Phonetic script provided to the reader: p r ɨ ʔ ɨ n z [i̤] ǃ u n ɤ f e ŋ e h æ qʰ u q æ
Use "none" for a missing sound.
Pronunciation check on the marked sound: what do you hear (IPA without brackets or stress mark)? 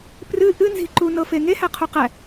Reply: i̤